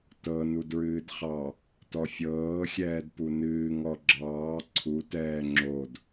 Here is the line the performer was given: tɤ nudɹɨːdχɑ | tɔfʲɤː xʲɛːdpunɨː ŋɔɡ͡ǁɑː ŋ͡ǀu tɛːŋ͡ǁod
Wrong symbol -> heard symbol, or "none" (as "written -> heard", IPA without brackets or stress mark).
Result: ŋ͡ǀ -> ǀʰ